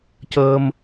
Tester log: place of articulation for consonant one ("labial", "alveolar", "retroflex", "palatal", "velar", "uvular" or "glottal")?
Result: palatal